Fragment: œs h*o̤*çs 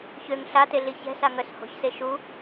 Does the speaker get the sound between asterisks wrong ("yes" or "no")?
no